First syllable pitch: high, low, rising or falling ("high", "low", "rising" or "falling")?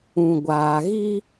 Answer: low